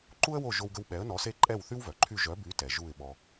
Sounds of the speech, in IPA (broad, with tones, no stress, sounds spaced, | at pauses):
ǃ u˥ ə̯ w o˥˩ ʒ o˧ w ɡ ə˧ w ɓ ɛ˩˥ ə̯ n ɔ˩˥ s e˧ ǃʼ ɛ˥˩ w θ y˥ w v œ˩ ǃʰ y˥˩ ʒ œ˩˥ b y˩˥ t ɛ˩ ʒ u˥˩ ɪ̯ ɓ ɔ˧